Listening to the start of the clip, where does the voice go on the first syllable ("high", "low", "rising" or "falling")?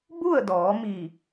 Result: falling